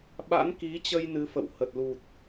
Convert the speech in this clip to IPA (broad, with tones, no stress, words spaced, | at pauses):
ɓa̰˧˥nki˨˦t͡ɕə˧j nɨ˨˦fə̰˧˨w hə˨˩t̚lu˨˩t̚